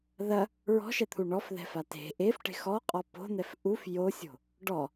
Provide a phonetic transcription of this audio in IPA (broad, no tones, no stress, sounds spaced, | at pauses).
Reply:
ð ɐ | ɹ ɔ̤ ʃ ɛ t̪ʰ u ɳ ɔ f ð ɛ̤ f a t e̤ ʔ e f ʈ e̤ x ɔ qʼ ɔ p o̤ n̪ ɛ f ʔ u f j o sʲ o̤ | ɖ ɔ